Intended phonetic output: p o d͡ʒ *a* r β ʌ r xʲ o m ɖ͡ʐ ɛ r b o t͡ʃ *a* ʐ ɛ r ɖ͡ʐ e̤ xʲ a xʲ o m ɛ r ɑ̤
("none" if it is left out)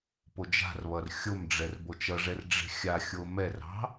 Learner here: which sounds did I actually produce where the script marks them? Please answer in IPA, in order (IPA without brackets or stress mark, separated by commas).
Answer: a̤, ʌ